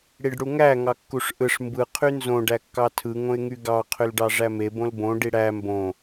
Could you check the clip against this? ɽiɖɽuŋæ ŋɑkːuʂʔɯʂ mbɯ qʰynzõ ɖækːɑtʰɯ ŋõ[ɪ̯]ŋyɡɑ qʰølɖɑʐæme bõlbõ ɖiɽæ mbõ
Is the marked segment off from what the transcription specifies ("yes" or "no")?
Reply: no